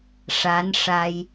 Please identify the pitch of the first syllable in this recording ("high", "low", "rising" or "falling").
rising